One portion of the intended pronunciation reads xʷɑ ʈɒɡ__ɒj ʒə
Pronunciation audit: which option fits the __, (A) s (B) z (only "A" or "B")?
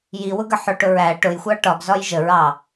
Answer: B